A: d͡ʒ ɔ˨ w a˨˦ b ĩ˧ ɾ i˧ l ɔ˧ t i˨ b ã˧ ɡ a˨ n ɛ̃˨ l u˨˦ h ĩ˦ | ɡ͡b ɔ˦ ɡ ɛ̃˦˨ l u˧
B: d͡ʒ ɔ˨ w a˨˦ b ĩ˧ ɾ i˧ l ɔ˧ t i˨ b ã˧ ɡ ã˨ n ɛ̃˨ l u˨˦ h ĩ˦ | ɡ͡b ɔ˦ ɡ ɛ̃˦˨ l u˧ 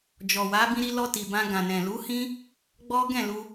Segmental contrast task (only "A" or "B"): B